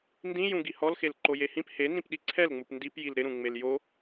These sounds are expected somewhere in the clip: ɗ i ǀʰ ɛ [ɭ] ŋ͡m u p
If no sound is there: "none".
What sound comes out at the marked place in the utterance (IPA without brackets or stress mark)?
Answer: l